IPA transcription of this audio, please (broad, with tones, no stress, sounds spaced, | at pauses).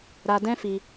ɾ a˧ d ɛ̃˦ f i˧